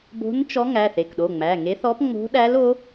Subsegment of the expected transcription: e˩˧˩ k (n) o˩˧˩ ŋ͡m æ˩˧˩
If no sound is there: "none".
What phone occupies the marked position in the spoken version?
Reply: ɗ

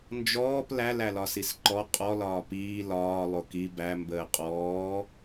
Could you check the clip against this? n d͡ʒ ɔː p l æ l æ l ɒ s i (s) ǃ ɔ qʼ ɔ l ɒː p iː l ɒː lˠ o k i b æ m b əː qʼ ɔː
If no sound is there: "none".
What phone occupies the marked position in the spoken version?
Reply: s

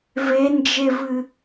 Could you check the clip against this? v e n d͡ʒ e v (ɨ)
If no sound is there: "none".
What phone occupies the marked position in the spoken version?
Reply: ɨ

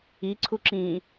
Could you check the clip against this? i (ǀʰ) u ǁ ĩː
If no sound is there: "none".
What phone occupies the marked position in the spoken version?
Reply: ǀʰ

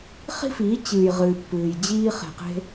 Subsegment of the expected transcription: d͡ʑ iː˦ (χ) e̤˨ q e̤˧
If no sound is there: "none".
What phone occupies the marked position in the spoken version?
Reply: χ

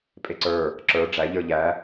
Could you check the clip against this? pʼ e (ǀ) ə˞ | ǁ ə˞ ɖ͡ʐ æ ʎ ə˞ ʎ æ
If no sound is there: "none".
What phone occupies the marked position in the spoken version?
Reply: ǀ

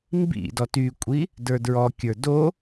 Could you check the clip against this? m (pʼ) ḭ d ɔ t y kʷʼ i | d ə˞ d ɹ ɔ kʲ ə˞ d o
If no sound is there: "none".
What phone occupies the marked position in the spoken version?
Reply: b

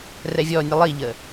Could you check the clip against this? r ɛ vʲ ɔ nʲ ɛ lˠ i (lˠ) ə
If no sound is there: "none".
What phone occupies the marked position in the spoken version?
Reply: ʎ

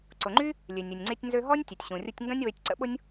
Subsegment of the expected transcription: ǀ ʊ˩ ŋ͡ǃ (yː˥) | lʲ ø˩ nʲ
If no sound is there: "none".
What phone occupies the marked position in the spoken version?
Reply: y˥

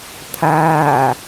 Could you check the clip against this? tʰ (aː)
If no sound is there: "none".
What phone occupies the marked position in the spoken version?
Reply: aː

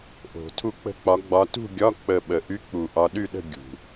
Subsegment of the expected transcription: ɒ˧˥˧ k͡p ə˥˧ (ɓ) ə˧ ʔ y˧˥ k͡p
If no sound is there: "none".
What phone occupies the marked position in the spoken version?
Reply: ɓ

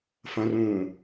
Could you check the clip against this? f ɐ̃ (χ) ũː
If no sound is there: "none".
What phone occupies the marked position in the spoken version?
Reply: r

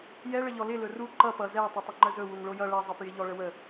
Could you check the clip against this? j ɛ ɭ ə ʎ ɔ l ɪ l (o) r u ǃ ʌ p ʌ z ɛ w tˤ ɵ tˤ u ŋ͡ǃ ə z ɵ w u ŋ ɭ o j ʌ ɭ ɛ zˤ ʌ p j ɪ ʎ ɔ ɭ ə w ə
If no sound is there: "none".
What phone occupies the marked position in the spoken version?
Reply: ɵ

